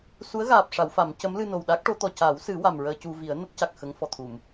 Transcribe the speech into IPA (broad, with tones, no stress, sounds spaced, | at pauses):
s u˧˥ ə̯ ɣ aː˨˩ p̚ ʂ a˨˩˦ w f a˨˩˦ m c ə˧˥ m l ɨ˧ n o˨˩ w ɗ a˦˥ k̚ ʈ o˧˥ t̪ ɔ˨˩ c a˨˩˦ w s ɨ˨˩˦ w a˨˩ m ɹ əː˧ c u˧ v i˨˩˦ ə̯ n ə˦˥ k̚ c a˨˩ k̚ x ə˧˥ ŋ f ɔ˨˩ t̪ʰ u˨˩˨ m